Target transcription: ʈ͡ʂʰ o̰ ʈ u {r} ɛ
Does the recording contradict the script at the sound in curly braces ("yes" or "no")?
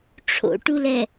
yes